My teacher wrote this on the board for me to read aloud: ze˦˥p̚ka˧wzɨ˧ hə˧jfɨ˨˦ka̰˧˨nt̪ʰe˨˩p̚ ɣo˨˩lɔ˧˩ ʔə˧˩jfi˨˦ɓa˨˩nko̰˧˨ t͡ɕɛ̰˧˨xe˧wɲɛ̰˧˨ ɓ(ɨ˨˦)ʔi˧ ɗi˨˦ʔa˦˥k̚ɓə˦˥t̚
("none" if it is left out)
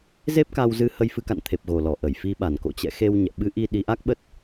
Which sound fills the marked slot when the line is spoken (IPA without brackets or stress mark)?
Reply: ɨ˨˦